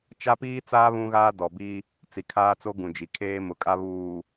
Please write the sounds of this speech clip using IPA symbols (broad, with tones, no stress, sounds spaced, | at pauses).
t͡ʃ a˦ p iː˦ t͡s aː˦ β ũ˦ ɣ aː˦ d ɔ˨ b iː˦ | t͡s i˨ kʰ aː˦ t͡s o˦ ɡ ũ˨ d͡ʒ i˨ kʰ eː˦ m ʊ˨˦ kʼ a˦ β uː˨